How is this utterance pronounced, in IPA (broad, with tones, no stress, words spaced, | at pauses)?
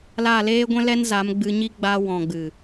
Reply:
laː˦˨leː˦ɡʷɛ̃˦ lɛ˦nza˨˦m ɡ͡bɨ˧ɲi˦ ɡ͡ba˧wɔ̃˨ɡ͡bɨ˨